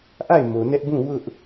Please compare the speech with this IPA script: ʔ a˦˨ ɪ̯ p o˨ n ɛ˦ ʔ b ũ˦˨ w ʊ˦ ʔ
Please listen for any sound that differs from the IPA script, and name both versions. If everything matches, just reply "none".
p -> m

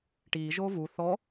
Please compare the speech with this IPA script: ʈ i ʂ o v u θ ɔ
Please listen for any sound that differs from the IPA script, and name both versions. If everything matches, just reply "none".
ʂ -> ʒ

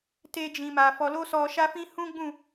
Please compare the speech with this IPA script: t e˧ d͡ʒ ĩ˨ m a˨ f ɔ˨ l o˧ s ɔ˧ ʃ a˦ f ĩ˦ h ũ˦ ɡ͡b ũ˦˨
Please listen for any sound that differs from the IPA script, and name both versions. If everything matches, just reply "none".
none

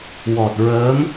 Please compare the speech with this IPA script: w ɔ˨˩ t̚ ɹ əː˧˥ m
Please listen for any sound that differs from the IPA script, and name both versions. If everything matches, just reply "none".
none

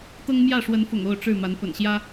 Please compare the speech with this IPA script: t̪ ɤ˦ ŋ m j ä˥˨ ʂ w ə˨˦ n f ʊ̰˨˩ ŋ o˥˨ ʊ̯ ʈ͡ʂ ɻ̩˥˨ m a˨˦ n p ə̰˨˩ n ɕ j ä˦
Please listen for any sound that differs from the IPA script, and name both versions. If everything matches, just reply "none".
none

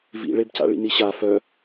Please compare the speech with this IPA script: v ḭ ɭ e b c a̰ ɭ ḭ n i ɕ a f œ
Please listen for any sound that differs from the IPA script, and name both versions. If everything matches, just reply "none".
none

